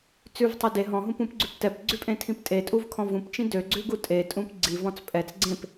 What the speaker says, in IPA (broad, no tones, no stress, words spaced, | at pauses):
t͡sʉvtˤɵ de ɦɔ̃ɦũpũpɡ͡ǀʉp tɛpɡ͡ǀʉpʼẽtʰĩp tʼetʼuvkʰɔ̃ vũpt͡ʃĩ døɡ͡ǀʉɡu tʼetʼũp ɡ͡ǀivɔ̃t͡s pʼɛt͡s ɡ͡ǀẽp